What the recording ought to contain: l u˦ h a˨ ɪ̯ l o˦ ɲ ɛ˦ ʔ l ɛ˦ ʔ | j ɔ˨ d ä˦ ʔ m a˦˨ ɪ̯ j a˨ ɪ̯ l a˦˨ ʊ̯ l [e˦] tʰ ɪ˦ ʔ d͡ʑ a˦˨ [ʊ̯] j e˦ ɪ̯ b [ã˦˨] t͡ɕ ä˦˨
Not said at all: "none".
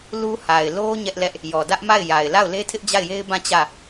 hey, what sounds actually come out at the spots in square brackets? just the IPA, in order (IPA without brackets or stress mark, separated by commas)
e˦, ɪ̯, ã˦˨